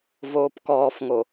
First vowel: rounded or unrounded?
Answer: rounded